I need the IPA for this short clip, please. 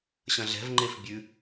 ɕ ɐ̃ ɮ ɛ̤ v ŋ͡ǃ e f bʲ ʉ

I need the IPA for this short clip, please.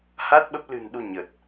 h a˦˥ t̚ ɓ ə˦˥ p̚ l ɨ̤˨˩ n ɗ u˧ ɲ ə˨˩ t̚

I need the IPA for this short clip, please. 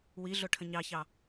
w i ɮ ʊ ʈʰ ə̃ ɲ ɑ ç ɑ

